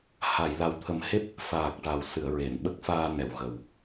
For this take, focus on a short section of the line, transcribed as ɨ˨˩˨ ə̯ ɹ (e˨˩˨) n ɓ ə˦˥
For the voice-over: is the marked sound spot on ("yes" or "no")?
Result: yes